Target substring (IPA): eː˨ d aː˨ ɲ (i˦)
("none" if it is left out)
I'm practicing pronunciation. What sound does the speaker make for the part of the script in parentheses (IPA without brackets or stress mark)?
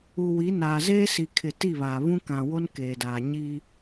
i˦